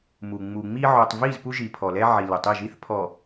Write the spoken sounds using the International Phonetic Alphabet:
m u˨ ŋ͡m u˨ ŋ͡m i˦ ʕ o˨ tˤ v i˦˨ z p u˦ ʒ i˨ pʰ ɔ˨ l ɛ˦ ʕ i˨ l ʊ˨ tˤ i˦˨ ʒ i˦ θ pʰ ɔ˨

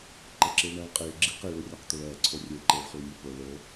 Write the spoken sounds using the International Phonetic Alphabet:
ǃ ɛ ǁ iː ɭ ɳ aː ɭ qʼ iː ɭ ɡ͡ǁ iː q e ɭ u rʲ a q t̪ o ɭ ɛː ǀʰ o rʲ e ǃ eː ɭ χ u ɭ nʲ u p o ɭ o

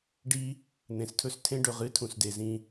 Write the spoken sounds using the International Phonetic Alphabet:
ɖ i˦ | n̪ ẽ˨ s tʰ ɵ˦ s tʰ ẽ˦ ɖ ɵ˨ ʁ ɨ˦ tʰ ũ˨ s d e˨ z ĩ˦

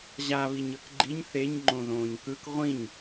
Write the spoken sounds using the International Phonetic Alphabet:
ʑ a β i ɲ ɤ k ɡ͡ǃ i ɲ θ e ɲ ŋ͡ǃ õ ð õː ɲ k ɯ k ʁʷ ĩ ɲ

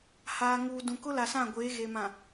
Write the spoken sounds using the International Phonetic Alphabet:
h aː˨ ŋ uː˨ d ũ˨ k ʊ˦ l a˨ s ã˦˨ ɡʷ eː˨˦ ɣ e˨ m ã˨

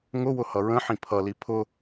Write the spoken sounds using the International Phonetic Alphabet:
ŋ ʊ w ʊ h ʌ ɹ ə̃ ħ ĩ pʰ ʌ l i pʰ ʊ

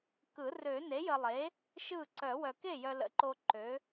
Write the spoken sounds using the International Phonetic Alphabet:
k ɯ˨˩˦ r ø˨˩˦ n e˩˥ j ə˨ lˠ e˩˥ | ʃ ɯ˥˩ ǀ œ˨˩˦ w œ˨ k e˥˩ j œ˨ l ə̰˩˥ ǃ o˨ ǃ ø˩˥

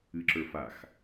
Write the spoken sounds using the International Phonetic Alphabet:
ɨ ǁ ə˞ f a x

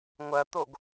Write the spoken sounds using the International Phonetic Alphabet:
ŋʷ ɐ t̪ o ɡ

